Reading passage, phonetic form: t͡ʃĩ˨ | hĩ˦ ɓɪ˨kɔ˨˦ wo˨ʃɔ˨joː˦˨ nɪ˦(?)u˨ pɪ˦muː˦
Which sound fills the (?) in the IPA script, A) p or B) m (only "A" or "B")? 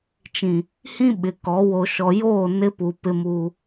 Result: A